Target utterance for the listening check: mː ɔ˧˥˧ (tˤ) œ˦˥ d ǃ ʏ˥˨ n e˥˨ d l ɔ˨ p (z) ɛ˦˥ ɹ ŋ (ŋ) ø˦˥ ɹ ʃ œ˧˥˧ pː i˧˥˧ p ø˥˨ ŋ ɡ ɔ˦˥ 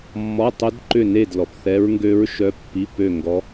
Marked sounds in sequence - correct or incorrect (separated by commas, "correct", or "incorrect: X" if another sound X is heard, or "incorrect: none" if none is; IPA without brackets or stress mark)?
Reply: correct, incorrect: θ, incorrect: ɡ